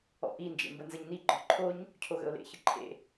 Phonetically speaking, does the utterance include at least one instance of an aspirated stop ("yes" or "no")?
yes